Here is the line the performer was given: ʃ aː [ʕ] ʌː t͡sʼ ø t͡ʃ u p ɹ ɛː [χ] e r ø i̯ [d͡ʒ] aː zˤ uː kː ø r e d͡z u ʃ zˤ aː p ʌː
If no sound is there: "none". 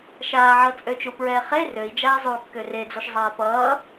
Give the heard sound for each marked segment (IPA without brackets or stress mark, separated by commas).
ʕ, χ, d͡ʒ